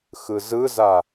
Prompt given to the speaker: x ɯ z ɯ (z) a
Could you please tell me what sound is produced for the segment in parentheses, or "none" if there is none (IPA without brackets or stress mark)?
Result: z